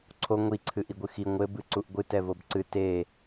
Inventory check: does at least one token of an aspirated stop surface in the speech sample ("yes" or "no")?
yes